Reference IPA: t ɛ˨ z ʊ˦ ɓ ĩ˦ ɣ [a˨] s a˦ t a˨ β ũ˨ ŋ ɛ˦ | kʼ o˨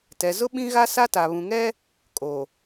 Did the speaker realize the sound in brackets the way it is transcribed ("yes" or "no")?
no